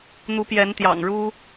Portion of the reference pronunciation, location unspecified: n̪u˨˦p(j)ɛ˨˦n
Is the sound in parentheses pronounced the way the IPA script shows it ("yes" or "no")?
yes